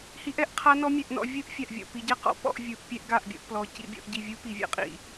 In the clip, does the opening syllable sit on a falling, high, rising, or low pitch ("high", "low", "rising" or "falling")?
rising